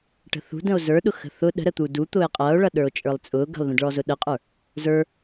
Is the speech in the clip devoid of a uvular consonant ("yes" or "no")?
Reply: no